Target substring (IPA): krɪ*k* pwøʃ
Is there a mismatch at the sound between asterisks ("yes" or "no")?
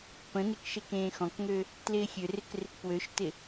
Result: no